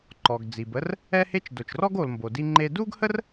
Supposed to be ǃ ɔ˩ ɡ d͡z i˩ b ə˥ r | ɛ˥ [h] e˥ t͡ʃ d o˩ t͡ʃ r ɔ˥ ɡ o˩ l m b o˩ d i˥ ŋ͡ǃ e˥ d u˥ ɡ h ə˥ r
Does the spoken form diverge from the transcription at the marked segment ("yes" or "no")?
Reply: no